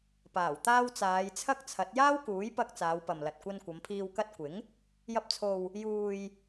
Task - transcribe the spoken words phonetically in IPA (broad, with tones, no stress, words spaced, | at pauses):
paː˨˩wt̪aː˧w t͡saː˨˧jt͡sʰɐ˥k̚t͡sʰɐ˨˥t̚ jaː˥wkuː˨˥jpɐ˧k̚ t͡saː˨˧wpɐ˨mlɐ˨t̚ kʷɐ˧nkʷɐ˨˧mpʰiː˧w kɐ˧t̚ kʷɪ˨˥ŋ | jɐ˧p̚t͡sʰo˨w | juː˨j